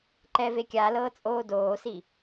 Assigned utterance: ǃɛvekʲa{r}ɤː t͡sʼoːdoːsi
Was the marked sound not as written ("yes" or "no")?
yes